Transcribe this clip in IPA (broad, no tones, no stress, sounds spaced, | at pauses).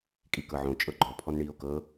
kʼ i k ɤ ʕ õ t͡ʃʼ ɤ ɡ͡ǃ ɔ pʰ ɔ n ɳ iː o̯ k ɤ